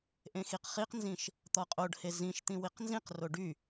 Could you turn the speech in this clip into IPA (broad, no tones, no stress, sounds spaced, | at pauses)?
ʔ ẽ x i q χ i q n z ĩ ʃ | t̪ ɔ qʼ o ɖ h e z ĩ ʃ t̪ ĩ w i q n z ĩ q r o ɖ y